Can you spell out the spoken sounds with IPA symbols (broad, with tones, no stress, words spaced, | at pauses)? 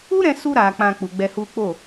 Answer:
u˦ɾɛ̃˧su˧ɾa˨ k͡pã˧k͡pu˨ ɡ͡bɛ˧hu˦ k͡po˦˨